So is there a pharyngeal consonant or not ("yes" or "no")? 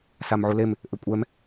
yes